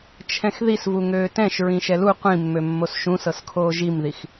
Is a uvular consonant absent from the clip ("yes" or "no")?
no